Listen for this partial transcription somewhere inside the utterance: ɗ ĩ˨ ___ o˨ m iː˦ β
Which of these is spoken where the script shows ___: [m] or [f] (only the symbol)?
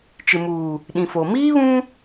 f